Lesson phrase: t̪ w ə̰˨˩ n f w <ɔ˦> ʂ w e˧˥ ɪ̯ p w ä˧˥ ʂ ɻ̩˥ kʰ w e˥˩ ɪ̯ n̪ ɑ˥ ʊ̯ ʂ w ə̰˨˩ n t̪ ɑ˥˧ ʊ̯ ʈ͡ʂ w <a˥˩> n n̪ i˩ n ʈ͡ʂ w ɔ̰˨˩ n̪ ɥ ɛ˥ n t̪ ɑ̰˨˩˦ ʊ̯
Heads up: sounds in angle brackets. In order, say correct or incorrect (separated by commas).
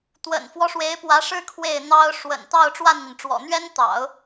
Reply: correct, correct